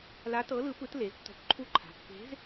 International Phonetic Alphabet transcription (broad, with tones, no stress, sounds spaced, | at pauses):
l a˧˥ t ɤ˧˥ l ɯ˧˥ p ɯ˧˥ t l e˩˥ z tː ɔ̤˧˥ kʷ ǃʰ u˧˥ ǃʰ a̤˩˥ pː e̤˧˥ z